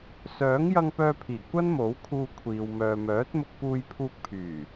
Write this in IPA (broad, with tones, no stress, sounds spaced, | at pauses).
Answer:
s œː˨˥ ŋ j ɐ˧ ŋ p œː˧ pʰ iː˨˩ kʷ ɐ˥ n m o˨˥ w kʰ uː˧ kʷʰ iː˨ w m œː˨ m œː˨˥ t̚ m ʊ˧ k̚ p uː˧ j pʰ uː˧ k̚ pʰ yː˨˩